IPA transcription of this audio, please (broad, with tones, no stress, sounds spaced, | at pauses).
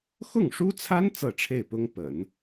x ʊ˥˩ ŋ ʂ u˥ t͡sʰ a˥ n t͡s ɤ˥˧ ʈ͡ʂʰ e˥˩ ɪ̯ p ʊ˥ ŋ p ə̰˨˩˦ n